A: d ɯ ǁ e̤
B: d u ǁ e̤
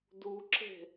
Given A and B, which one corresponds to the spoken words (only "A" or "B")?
B